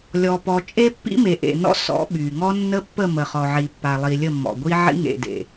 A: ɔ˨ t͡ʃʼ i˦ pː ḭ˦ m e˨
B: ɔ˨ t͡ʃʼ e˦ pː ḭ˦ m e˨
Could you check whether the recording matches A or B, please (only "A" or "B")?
B